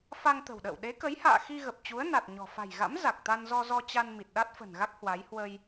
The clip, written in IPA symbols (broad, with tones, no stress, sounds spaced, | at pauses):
f a˧ ŋ t̪ ə̤˨˩ w ɗ ə̰ː˧˨ w ɗ e˨˦ k ə˨˦ j h a̰ː˧˨ x i˧ ɣ ə˨˩ p̚ t͡ɕ u˨˦ ə̯ n a˨˩ t̚ ɲ ɔ̤˨˩ f a̤˨˩ j ɣ a̰˧˥ m z a˨˩ k̚ t̪ a˧ n z ɔ˧ z ɔ˧ t͡ɕ a˧ n m i˨˩ t̚ ɗ a˦˥ t̚ f ə̤˨˩ n ɣ a˦˥ k̚ h w a˨˦ j h w ə˧ j